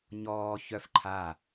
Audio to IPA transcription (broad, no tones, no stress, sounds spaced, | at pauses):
ɲ ɔː ç œ f ǃʰ a